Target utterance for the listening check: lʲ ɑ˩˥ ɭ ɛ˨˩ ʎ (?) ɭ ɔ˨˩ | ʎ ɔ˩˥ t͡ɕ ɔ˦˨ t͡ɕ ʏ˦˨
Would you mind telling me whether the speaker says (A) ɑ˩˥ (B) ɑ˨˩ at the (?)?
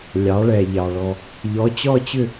B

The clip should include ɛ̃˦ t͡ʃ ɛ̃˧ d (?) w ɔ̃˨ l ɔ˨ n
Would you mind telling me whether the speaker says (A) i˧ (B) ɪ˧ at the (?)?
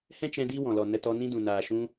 A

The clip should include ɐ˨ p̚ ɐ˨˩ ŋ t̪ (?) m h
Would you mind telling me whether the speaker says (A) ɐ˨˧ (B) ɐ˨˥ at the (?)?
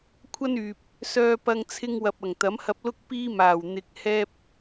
B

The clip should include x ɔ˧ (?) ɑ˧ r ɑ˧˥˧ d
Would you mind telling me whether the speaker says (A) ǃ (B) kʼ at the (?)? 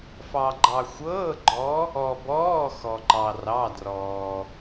A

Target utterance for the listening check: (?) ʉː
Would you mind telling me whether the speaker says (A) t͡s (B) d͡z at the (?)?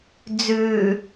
B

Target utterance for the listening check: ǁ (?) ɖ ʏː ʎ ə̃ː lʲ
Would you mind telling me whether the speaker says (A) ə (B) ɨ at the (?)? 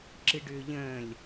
B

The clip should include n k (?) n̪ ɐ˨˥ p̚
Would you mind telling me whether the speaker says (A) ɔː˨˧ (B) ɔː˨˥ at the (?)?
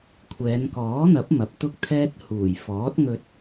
B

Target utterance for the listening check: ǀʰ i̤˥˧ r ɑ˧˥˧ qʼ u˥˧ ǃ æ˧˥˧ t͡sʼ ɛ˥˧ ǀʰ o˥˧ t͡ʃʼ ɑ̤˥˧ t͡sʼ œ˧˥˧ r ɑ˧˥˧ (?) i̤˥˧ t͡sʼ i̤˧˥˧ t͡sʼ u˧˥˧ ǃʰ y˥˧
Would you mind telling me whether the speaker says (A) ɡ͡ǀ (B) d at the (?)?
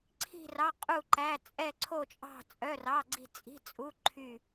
A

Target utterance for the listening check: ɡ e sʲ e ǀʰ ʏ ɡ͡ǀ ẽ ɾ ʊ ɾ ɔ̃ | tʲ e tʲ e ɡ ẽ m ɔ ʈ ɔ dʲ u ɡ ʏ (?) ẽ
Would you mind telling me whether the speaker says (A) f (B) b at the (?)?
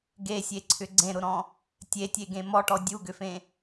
A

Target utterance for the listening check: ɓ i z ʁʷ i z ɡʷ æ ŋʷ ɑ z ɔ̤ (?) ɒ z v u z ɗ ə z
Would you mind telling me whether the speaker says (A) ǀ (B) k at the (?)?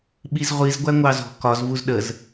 B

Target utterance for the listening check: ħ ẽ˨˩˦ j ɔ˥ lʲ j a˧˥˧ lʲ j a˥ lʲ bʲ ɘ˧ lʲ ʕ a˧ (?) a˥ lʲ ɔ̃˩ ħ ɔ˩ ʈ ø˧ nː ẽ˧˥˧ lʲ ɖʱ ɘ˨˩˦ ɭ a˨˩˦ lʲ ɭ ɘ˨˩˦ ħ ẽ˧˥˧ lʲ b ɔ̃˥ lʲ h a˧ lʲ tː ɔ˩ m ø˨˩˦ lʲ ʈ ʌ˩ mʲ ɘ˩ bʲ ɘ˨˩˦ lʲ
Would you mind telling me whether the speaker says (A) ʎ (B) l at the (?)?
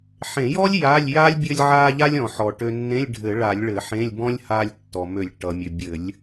A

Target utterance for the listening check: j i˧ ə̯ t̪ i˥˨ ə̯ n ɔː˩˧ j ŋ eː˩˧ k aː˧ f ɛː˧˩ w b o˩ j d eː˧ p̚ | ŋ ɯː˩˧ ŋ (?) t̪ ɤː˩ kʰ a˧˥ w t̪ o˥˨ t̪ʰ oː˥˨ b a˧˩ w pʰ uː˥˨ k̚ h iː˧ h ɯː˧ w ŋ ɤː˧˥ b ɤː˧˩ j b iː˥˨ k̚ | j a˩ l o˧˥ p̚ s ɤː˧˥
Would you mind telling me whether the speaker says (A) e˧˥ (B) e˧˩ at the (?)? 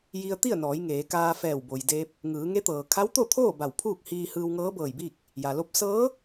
A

